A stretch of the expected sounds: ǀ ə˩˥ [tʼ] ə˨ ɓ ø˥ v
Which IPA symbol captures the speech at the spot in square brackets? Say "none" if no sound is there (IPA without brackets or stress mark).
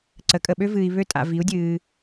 kʼ